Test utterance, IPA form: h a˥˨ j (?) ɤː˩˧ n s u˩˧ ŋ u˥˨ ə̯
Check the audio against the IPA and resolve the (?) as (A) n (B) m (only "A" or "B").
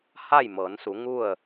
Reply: B